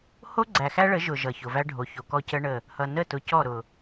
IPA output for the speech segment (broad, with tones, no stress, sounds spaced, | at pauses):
h o˦ ɡ͡ǀ æ˨ x æ˦ ɭ ə˨˦ ʒ ʊ˨ ʒ ʌ˨ ç ʊ˨ v æ˦ ɖʱ o˨ ç o˨ k ɔ˦ c ə˦ ɳ ə˦˨ | h ʌ˨ n ə˦˨ t ʊ˨ c ɔ˦˨ ɾ ʊ˨